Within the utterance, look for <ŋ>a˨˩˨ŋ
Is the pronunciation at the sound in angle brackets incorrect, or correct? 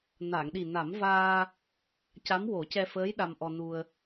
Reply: incorrect